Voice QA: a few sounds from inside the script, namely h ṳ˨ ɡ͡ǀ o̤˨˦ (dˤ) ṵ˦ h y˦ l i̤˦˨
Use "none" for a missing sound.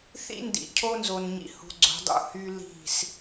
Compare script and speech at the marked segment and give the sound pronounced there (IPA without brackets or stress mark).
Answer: dˤ